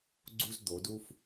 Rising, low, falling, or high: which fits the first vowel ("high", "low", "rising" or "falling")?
high